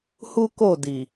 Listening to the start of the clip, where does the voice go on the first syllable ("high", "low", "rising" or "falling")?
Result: high